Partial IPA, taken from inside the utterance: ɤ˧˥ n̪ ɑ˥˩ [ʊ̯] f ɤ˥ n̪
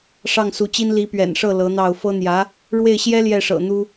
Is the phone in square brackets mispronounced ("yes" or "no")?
no